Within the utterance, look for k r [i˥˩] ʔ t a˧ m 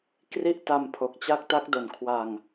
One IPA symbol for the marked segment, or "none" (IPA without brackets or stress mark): i˥˩